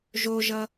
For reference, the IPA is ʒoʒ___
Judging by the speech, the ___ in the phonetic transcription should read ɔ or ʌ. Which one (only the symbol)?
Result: ʌ